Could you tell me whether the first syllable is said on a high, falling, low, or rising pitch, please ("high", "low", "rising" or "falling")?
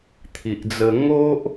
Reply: low